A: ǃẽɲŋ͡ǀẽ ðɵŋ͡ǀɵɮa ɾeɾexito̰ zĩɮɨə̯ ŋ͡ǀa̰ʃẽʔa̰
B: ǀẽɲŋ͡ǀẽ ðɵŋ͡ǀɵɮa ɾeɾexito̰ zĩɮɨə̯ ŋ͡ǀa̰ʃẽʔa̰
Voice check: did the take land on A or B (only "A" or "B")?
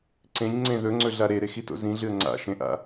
B